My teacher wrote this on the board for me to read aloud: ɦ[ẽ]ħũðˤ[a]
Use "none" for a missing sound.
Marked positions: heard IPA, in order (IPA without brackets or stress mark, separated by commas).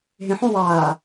ẽ, aː